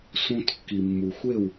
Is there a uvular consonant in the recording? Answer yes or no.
no